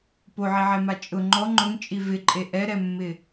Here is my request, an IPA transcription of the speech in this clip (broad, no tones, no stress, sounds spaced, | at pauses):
p o ʕ i ʕ ɛ m a t͡ʃʼ ʊ ŋ͡ǃ ɔ ŋ͡ǃ ʊ ŋ t͡ʃʼ i v ɪ ǃʼ e ʔ ɛ ɾ ɛ mː ɪ